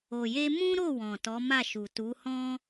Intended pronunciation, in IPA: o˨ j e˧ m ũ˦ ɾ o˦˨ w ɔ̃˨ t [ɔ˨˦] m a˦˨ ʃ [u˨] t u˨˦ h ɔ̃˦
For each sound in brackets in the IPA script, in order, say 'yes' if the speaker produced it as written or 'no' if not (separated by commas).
yes, yes